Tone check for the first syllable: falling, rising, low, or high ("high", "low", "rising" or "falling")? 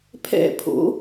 falling